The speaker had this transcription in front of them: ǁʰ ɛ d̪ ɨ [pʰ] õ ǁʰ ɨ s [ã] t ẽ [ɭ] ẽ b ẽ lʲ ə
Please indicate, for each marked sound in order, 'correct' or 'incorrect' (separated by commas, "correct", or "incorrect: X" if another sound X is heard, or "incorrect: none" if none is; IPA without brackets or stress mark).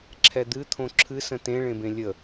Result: incorrect: t̪ʰ, incorrect: ə̃, correct